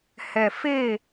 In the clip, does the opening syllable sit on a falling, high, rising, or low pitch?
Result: low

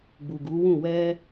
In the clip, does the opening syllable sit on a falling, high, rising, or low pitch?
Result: low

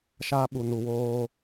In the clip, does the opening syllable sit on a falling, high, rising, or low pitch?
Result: high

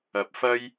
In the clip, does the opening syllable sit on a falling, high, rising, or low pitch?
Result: rising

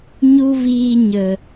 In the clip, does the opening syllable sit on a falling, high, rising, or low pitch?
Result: high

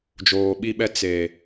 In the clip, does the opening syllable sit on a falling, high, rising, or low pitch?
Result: low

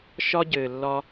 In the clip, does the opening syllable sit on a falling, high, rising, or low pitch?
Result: high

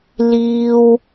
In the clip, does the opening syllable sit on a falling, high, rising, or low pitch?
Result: high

